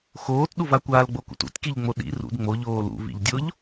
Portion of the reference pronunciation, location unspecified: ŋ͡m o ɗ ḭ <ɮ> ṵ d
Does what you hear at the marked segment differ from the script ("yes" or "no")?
yes